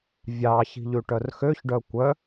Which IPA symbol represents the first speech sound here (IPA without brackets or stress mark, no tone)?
vʲ